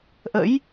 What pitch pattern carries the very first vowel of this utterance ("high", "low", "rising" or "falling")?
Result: rising